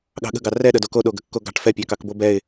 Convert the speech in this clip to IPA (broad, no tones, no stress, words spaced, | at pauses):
ɠɑ̤ɠə̤ɡɑ rɛɗə doko ɗoɡə̤kːoɡɑ̤ʈ fɛpʲɑkɑk bobɛɪ̯